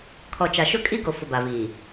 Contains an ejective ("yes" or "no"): yes